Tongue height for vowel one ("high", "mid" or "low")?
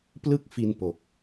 high